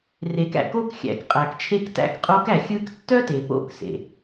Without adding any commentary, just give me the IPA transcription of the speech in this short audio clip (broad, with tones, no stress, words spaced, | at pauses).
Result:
re˩˧kæ̰˩ko˧˥k xʲæ̰˩˧kqʼæ˩kt͡ʃʰe˧ktæ̰˧k qʼo˧˥k æ˩xʲɯ˧˥ktːœ˥ te˩po̰˧˥ksḛ˩